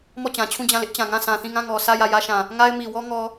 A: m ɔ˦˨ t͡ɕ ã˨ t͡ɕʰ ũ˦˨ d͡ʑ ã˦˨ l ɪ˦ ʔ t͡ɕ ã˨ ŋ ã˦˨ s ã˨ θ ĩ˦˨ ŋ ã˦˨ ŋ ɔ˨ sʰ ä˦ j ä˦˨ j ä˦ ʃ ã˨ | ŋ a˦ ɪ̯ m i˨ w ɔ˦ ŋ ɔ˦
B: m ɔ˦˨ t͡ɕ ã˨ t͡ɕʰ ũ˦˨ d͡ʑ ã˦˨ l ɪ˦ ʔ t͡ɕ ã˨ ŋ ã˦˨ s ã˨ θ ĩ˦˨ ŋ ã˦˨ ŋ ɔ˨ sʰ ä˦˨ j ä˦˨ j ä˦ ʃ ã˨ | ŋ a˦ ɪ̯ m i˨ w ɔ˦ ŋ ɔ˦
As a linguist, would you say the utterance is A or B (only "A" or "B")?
B